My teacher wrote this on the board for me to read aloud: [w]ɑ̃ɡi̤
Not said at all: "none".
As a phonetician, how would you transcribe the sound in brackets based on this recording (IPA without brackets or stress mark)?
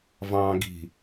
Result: v